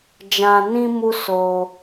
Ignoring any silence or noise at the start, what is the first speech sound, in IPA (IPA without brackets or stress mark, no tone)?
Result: d͡ʒ